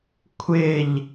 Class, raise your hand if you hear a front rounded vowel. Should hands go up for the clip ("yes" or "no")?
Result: no